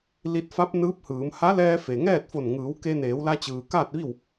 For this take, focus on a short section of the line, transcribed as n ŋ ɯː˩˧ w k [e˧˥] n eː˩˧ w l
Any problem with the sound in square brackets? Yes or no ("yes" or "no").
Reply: yes